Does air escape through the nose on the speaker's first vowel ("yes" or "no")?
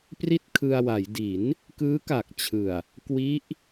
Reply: no